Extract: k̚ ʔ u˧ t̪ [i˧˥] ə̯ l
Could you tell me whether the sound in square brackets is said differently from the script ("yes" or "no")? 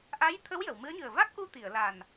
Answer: yes